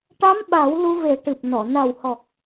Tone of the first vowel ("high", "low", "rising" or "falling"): rising